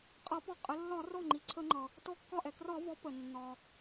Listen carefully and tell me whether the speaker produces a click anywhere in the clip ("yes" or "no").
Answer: yes